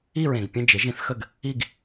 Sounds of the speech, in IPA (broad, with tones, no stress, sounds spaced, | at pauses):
i˥˨ ɹ ẽ˩ ɡ pʲ ə̃˥˨ d͡ʒ ɪ˩˥ ʒ ĩ˩˥ θ x ə˥˨ ɡ | i˥˨ ɡ